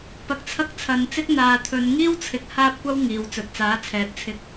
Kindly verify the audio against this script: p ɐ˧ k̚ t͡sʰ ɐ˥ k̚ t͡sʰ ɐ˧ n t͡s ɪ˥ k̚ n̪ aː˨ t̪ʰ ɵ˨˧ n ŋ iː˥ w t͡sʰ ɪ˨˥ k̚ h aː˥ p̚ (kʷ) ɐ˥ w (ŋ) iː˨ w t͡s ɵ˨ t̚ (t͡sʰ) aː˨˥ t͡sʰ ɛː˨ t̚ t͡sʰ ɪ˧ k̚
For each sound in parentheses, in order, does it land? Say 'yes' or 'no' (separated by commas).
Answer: yes, yes, no